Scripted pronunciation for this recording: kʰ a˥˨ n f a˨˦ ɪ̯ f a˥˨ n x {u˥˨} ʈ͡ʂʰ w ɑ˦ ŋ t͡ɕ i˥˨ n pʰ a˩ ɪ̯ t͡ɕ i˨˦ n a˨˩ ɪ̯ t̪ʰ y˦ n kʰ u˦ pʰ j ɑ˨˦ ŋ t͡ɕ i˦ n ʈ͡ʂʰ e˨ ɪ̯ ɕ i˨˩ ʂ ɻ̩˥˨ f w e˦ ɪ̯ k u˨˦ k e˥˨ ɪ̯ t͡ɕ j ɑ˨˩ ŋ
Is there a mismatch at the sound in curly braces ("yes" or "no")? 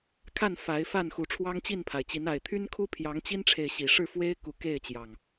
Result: yes